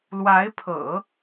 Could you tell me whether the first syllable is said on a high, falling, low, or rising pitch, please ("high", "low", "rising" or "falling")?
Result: rising